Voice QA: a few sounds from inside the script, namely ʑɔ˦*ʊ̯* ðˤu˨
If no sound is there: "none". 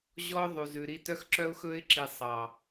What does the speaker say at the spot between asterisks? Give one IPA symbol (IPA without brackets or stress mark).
ʊ̯